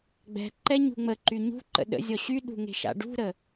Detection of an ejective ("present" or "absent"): absent